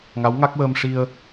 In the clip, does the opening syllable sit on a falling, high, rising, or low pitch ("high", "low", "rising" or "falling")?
rising